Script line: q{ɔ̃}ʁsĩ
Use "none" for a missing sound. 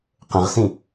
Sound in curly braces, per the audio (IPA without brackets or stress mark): ə̃